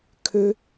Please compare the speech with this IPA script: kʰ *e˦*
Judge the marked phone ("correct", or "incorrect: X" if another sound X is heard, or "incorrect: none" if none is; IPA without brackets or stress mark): incorrect: ø˦